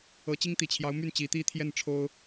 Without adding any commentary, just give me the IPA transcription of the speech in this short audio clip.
ɤ˧˥t͡ɕi˥ŋ t̪i˨˩t͡ɕʰjɑ˧˥ʊ̯ my˥˩nt͡ɕi˧˥t̪i˥t̪ʰjɛ˥˩n ʈ͡ʂʰo˥ʊ̯

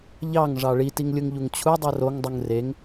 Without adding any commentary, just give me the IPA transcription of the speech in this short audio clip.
ʎɑŋʐɑ ɭitiŋ lʲɯŋʎuŋt͡ɕʰudˤɯ roŋdˤuŋ reŋ

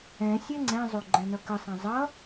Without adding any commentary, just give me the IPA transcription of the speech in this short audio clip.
ɛ̃ sʲɛŋ͡ǀɛ̃zˤo ɡ͡ǃɛ̃nʌkəsˤɛ̃ zˤʌ

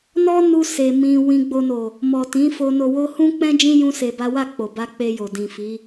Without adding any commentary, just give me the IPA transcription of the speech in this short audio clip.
nɔ˦ nu˦ se˧ mĩ˧ wĩ˧ɡ͡bo˧no˨ | mɔ˨tĩ˨˦ fo˧no˧wo˦ hũ˦k͡pɛ̃˦ d͡ʒĩ˦ jũ˦se˧ba˦ wa˦˨k͡po˨ba˧ k͡pe˧jo˨ dĩ˨fi˨˦

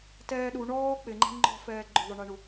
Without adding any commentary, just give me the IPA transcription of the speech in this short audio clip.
tɛːɗu ɳɔː k͡pɪŋ͡ǃɛ̤ ŋ͡ǃɔ̤fɛː ɡ͡ǃʊðˤʊɳeɳu

